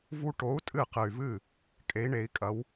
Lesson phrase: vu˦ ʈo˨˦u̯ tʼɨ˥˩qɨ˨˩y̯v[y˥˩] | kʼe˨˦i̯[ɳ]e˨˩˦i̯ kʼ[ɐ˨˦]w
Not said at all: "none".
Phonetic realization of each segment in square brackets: ɨ˥˩, ɳ, ɐ˨˦

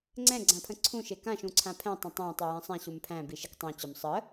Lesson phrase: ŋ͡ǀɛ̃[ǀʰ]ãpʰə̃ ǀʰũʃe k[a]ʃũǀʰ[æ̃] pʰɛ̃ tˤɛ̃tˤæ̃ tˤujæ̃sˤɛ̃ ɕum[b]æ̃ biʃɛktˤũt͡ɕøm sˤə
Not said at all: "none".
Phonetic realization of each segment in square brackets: ɡ͡ǀ, ã, ã, pʰ

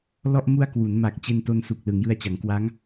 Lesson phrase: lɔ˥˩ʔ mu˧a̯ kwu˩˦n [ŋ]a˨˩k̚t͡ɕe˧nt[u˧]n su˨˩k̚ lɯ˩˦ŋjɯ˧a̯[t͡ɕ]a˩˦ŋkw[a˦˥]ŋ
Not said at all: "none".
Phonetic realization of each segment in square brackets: m, o˧, t͡ɕ, a˦˥

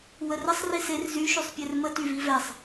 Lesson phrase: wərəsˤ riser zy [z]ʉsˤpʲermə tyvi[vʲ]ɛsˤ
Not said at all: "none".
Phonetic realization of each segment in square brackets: ʃ, v

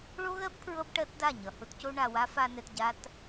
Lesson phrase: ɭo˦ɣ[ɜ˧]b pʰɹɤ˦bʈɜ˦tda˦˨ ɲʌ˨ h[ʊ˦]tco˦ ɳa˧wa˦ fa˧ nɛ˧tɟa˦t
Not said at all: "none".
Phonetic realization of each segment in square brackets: ɜ˦, ʊ˦

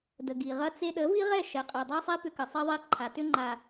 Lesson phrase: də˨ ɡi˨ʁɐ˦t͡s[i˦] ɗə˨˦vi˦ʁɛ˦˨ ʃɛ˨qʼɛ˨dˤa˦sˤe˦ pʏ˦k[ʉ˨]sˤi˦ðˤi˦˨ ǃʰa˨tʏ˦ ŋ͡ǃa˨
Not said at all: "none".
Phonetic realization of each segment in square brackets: e˦, ə˨

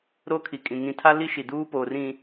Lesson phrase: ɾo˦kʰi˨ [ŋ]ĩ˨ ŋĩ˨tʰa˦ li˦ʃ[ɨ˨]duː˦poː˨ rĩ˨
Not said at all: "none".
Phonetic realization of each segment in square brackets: kʼ, i˨

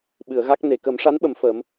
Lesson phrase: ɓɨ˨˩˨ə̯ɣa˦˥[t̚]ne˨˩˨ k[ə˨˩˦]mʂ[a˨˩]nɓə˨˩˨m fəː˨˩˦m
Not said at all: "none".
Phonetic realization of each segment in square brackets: k̚, ə˨˩˦, a˧˥

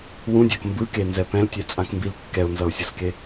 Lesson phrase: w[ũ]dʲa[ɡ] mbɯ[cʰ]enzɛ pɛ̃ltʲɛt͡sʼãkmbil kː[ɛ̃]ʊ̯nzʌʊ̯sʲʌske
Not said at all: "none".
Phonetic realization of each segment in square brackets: ũ, k, k, ɛ

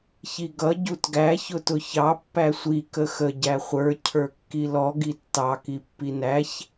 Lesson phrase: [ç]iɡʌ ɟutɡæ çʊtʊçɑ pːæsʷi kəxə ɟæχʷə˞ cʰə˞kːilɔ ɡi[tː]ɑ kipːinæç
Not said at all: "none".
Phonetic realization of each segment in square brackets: ç, tː

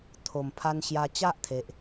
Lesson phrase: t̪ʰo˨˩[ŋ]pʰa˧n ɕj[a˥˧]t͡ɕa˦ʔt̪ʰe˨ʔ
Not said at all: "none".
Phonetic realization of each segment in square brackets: m, a˧

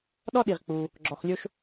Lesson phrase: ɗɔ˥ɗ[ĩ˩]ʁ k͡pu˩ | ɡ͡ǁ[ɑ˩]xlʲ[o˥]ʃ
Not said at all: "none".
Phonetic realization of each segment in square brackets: i˩, ɔ˩, o˥

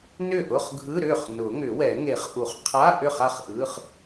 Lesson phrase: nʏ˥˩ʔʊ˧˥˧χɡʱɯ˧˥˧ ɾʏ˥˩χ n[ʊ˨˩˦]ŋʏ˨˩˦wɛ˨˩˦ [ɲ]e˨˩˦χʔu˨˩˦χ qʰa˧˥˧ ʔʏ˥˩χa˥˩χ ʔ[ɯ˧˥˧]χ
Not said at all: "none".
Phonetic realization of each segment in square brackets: ʊ˨˩˦, ŋ, ɯ˧˥˧

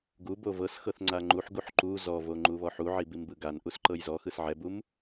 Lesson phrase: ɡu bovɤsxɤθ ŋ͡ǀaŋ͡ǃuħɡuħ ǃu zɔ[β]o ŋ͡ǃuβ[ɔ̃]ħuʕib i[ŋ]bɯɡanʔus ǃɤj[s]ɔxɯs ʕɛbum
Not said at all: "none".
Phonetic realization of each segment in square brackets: v, ɔ, m, z

